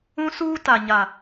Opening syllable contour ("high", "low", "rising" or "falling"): high